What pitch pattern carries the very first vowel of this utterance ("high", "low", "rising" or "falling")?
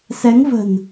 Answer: rising